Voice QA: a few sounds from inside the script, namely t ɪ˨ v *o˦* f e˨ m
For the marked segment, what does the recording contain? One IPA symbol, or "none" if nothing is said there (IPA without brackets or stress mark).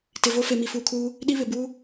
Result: o˦